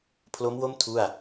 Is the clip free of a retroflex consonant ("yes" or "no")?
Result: yes